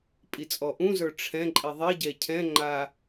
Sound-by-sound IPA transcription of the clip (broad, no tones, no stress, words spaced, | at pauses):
pʼit͡sʼɔʔũzə˞ ʈ͡ʂʰɛ̃ ǃʼiðˤiɟɛ cʰɛ̃ŋ͡ǃa